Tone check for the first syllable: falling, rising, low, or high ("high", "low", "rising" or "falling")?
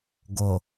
low